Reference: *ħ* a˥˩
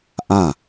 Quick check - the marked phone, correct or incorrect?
incorrect: ʔ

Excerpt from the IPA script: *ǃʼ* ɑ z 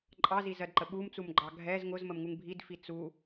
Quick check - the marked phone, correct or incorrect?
correct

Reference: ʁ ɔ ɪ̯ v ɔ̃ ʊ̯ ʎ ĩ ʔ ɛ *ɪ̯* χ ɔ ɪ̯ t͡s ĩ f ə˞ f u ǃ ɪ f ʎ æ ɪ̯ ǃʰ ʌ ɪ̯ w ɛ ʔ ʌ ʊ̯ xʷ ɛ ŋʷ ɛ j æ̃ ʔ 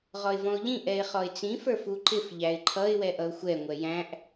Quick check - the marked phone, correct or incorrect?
correct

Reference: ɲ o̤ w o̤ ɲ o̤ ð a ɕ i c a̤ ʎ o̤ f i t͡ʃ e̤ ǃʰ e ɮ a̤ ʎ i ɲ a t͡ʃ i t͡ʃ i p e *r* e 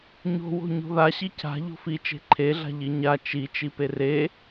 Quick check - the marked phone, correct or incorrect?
correct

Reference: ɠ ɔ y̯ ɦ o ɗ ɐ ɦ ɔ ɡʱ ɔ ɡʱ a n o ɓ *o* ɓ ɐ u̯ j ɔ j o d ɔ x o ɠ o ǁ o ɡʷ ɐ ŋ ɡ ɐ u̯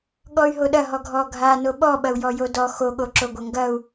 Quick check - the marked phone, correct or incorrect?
incorrect: ɔ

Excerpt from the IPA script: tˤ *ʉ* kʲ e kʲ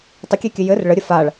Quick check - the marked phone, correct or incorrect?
incorrect: ə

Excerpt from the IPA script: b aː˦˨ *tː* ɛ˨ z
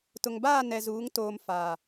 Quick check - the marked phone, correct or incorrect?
incorrect: n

